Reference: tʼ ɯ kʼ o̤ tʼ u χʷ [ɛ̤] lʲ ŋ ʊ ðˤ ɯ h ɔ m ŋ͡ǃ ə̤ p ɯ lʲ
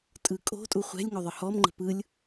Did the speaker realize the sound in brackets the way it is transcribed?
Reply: yes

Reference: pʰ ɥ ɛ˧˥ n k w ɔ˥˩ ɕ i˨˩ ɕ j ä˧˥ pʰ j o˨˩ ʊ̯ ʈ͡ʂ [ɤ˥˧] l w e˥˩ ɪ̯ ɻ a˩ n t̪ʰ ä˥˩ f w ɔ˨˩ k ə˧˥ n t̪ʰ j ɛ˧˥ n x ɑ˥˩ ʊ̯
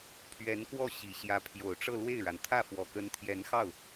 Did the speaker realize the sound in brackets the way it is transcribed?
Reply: yes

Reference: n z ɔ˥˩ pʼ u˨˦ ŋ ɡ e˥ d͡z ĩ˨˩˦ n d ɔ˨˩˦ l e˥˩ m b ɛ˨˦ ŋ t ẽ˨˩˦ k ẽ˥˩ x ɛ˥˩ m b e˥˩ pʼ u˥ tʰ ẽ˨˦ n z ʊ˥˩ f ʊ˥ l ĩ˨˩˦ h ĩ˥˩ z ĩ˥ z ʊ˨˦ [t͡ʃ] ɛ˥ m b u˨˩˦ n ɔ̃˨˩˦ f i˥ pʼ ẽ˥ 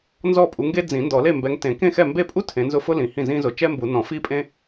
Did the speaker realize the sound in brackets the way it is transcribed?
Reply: yes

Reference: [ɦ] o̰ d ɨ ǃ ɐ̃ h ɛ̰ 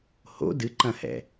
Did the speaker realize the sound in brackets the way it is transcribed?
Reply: no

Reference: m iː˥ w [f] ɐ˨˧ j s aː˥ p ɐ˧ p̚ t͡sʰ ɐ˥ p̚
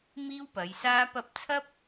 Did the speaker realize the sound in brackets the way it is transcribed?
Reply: no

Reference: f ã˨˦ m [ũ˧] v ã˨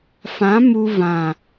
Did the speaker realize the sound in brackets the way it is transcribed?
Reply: no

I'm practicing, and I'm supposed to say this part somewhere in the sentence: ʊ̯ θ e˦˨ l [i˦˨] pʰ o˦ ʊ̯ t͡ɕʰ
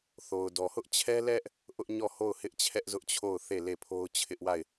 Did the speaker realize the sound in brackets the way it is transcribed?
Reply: no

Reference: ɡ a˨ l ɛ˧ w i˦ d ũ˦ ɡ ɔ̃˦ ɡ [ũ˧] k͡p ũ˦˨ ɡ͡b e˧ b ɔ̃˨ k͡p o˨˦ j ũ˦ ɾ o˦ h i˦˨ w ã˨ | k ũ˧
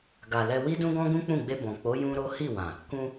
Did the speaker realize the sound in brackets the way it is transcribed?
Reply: no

